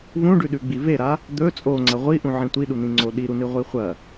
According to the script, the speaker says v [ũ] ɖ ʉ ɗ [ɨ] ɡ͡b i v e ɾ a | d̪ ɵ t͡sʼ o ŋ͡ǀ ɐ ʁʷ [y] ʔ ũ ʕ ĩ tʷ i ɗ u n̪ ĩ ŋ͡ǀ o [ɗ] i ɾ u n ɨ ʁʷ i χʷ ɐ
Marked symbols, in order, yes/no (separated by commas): yes, no, no, yes